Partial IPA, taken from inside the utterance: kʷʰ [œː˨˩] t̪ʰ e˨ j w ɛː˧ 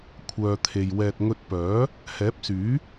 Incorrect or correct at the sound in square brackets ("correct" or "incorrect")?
incorrect